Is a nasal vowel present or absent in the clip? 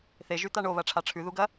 absent